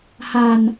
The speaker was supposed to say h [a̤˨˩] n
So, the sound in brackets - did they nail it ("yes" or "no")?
yes